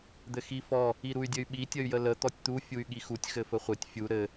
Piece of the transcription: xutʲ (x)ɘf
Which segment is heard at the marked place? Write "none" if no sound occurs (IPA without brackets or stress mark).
x